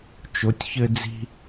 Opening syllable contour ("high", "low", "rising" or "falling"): rising